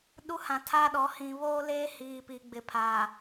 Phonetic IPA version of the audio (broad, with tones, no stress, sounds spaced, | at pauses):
ɗ u˦ h ã˨ tʰ a˦ ɗ ɔ˨˦ h ĩ˨ β o˦ l eː˦ h iː˨ p i˨ ɡ͡b ɪ˨˦ pʰ aː˨